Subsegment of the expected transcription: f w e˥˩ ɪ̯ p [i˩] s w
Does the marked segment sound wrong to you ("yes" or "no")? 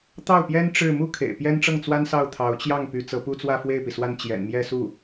no